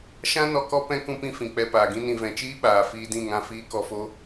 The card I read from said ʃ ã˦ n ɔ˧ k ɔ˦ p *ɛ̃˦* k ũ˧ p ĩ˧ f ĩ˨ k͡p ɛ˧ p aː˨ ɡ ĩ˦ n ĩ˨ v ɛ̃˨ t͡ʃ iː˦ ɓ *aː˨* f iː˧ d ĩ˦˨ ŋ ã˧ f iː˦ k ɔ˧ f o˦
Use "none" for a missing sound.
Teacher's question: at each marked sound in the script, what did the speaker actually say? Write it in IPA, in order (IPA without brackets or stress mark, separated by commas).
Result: ɛ̃˦, aː˨